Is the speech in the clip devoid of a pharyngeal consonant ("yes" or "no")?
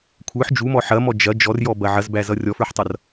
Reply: no